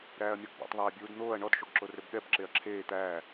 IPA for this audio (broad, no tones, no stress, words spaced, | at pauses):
ɾæːɐ̯mʲɔɡbɔ̰tˤ ðˤeːbʲuːdn̪oːɐ̯ ɳɔd ʃoɡǁorøbɠɛb ǁeɐ̯ǁʰeː t̪æː